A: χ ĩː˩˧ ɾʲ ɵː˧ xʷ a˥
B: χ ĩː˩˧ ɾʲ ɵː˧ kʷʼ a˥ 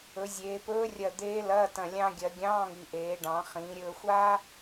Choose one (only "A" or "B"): A